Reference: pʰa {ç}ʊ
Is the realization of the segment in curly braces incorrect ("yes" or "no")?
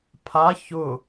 no